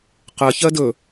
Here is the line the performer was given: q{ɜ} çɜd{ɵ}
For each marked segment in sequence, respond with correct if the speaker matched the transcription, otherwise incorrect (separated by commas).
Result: correct, correct